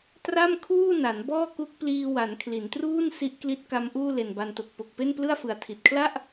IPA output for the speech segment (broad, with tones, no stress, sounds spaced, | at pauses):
t r a˥˩ m kʰ uː˥˩ n a˩˦ n b ɔː˥˩ k u˦˥ k̚ p l iː˧ w a˩˦ n kʰ l i˩˦ n t r uː˥˩ n s i˦˥ ʔ k l i˦˥ t̚ k a˦˥ m ʔ uː˥˩ l e˨˩ n b a˧ n t o˨˩ k̚ p o˨˩ k̚ p e˥˩ n p l ɯ˥˩ a̯ f ɯ˨˩ a̯ tʰ i˨˩ t̚ kʰ l a˥˩ ʔ